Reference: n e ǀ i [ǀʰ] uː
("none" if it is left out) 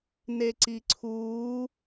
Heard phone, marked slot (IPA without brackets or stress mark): ǀʰ